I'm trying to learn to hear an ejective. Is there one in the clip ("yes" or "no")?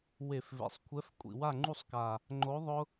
yes